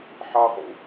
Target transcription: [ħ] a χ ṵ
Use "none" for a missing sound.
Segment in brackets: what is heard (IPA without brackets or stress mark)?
ħ